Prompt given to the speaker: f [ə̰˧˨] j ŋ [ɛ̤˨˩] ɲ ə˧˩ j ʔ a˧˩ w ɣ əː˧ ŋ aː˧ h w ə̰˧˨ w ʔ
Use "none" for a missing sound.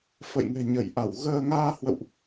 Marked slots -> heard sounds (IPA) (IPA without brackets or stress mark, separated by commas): ə̰˧˨, ɛ̤˨˩